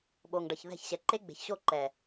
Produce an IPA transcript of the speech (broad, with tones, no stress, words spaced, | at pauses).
ɓo˨ŋɖʌ˨çðɛ̤˦˨çɕɛ˨ ǃe˦ɡ͡be̤˨çɕo˦˨ ǃɛ˨